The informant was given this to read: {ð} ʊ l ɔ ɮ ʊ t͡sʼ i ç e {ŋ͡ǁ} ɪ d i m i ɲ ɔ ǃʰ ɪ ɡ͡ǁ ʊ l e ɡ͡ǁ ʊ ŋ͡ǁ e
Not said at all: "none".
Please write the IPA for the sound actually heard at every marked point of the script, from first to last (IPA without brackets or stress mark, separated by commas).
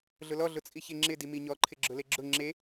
ɮ, ŋ͡ǁ